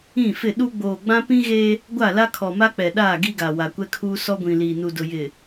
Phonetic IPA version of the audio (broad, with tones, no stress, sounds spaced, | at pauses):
ĩ˦˨ f ɪ˦˨ ɗ u˦ ɡ͡b oː˨ ɡ͡b ã˦ p ĩ˦ ɣ e˦ | ɡʷ a˦˨ l a˦ kʰ ɔ˨ m a˦ k͡p ɛ˨ ɗ aː˦˨ ɡ i˦ ɡ a˨ w a˨ kʷ ɛ˦ kʰ uː˦ s ɔ˦ ɡʷ ĩ˨ l iː˨ n u˨ d ʊ˨ j ɪ˨